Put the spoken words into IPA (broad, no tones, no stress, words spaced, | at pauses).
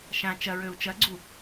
ʃã t͡ʃɐɹøu̯ t͡ʃɐɡ͡ǀu